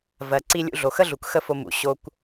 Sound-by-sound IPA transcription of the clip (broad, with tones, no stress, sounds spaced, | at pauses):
v ɜ˩ ǀ i˧ lʲ ṵ˧ ɮ o˩ x ə˥ ɮ u˩ k x ə˥ f o˧ m ṵ˩ ɕ o˧ kʷ